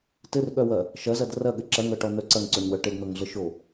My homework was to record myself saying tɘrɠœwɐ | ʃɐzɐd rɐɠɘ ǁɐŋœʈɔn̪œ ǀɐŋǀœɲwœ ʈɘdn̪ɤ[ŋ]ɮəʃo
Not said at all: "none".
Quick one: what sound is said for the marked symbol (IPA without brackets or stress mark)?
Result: ŋ